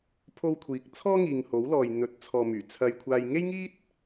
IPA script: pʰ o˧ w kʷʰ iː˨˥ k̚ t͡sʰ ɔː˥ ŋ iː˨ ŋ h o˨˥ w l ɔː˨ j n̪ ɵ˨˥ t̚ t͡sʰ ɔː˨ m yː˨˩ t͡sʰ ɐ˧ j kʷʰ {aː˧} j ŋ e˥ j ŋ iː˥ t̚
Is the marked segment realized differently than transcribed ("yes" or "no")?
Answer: no